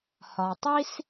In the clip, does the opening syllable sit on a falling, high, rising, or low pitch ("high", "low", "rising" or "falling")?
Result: low